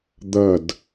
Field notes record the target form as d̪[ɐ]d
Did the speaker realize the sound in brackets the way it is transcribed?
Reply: yes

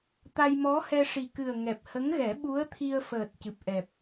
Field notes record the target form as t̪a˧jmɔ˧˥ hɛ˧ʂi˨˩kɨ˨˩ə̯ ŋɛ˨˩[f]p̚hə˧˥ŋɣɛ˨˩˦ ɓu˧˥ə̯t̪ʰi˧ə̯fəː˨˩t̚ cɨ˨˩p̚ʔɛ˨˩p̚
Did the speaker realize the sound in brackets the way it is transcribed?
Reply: no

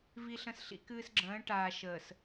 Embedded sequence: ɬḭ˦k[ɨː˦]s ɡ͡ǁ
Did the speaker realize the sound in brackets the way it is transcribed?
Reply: yes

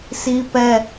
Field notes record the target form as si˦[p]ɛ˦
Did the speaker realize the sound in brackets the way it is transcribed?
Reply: yes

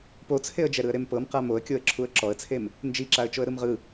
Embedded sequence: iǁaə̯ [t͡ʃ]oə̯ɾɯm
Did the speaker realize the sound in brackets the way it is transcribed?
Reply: yes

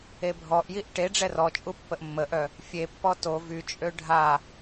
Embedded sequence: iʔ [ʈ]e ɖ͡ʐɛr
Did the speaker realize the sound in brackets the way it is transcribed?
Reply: yes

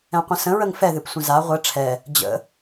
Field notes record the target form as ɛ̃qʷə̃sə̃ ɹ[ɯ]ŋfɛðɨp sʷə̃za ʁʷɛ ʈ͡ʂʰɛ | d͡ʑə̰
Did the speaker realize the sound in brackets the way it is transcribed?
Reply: no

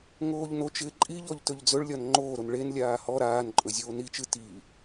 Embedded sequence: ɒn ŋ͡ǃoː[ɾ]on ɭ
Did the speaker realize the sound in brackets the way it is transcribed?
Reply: yes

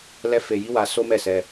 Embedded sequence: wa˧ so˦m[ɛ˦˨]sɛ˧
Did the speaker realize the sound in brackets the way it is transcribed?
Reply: yes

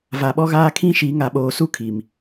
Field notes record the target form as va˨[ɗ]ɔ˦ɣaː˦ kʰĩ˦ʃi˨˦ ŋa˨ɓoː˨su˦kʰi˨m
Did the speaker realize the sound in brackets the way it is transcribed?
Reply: no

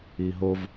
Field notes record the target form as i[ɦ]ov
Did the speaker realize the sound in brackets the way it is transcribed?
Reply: yes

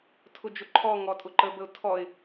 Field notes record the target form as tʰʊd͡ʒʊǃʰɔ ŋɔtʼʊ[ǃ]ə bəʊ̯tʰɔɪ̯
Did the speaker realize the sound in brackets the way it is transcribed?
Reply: yes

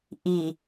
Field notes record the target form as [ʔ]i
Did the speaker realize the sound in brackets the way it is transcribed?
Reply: yes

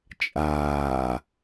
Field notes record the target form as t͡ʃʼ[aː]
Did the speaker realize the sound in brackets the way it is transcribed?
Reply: yes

